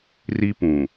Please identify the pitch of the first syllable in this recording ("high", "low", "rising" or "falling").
high